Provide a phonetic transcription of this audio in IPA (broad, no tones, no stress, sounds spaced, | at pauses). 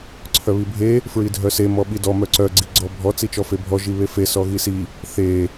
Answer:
ǀʰ œ β i bʱ e | f ɹ i dʱ œ s e m ɔ ɓ i d ɔ m œ ǀ œ ɡ͡ǀ i ɡ͡ǀ ɔ bʱ ɔ t͡s i t͡ʃ ɔ f e bʱ ɔ ʒ i β e f e s ɔ ɣ i s i | θ e